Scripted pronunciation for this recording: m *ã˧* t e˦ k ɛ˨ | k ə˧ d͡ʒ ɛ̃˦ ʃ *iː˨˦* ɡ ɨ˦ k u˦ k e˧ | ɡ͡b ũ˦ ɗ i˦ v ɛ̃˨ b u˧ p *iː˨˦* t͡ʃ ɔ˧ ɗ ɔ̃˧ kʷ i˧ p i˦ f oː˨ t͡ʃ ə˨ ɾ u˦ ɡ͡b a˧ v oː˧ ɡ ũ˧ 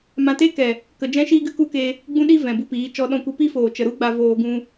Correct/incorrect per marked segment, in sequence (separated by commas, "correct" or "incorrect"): correct, incorrect, correct